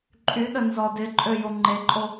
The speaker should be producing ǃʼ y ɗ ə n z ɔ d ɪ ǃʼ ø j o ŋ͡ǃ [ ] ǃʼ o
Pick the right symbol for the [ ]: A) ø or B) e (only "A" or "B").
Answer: B